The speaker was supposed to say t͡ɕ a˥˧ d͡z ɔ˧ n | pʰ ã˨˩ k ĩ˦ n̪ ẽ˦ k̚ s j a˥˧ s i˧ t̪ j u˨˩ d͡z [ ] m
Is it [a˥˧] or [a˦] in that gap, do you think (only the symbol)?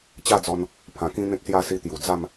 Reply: a˥˧